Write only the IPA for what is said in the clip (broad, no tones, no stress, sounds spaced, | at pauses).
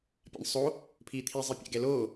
pʲ a̰ ɳ sˤ o | pʰ iː t̪ʰ i zˤ i pʲ a̰ ɡ ɛ l oː